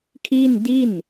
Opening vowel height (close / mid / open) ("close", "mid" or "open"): close